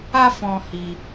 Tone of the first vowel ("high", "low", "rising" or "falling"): high